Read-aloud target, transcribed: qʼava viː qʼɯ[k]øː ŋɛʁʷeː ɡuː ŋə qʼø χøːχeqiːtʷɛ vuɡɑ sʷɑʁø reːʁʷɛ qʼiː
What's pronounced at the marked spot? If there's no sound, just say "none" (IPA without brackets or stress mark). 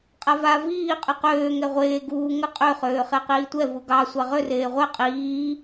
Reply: q